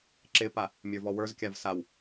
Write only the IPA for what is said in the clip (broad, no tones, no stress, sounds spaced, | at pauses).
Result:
ǁ ɪ p a | mʲ ə˞ v ɔ w ə˞ z kʲ a v s a w